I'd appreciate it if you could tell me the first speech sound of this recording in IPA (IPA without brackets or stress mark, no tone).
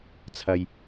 t͡sʰ